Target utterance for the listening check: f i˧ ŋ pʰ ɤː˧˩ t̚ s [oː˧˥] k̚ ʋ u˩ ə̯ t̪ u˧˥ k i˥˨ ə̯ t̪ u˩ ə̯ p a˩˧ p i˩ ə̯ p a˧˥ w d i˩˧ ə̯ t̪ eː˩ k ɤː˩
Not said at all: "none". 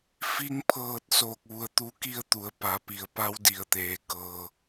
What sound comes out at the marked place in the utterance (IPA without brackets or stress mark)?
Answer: oː˧˩